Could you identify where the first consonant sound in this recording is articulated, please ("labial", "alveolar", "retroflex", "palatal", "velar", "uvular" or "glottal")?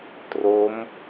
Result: alveolar